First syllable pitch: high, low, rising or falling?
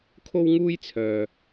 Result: high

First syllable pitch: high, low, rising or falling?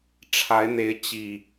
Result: rising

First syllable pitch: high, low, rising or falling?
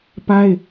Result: high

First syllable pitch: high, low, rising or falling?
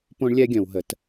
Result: high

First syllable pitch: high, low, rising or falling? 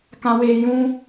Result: high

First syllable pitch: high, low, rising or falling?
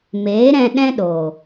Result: rising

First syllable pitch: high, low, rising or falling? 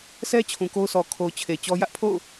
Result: high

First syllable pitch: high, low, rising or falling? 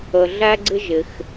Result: low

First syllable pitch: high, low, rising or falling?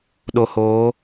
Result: low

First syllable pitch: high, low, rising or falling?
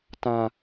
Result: low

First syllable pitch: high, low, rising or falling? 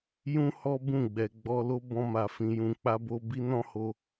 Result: high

